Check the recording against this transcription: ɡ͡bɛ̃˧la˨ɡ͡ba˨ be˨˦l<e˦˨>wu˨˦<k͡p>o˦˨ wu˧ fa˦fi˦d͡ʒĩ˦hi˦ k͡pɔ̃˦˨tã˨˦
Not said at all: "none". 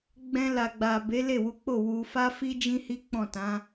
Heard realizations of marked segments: e˦˨, k͡p

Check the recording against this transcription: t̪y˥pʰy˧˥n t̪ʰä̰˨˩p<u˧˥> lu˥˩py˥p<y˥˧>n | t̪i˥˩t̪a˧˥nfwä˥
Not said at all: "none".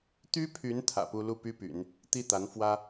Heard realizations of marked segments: u˥, y̰˨˩˦

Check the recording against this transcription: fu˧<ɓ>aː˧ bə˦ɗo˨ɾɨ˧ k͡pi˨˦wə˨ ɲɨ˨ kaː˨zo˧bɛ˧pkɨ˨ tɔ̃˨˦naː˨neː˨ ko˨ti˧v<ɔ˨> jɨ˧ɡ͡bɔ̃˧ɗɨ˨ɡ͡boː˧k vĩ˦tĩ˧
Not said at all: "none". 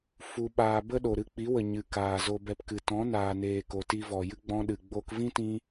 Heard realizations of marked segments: ɓ, ɔ˨

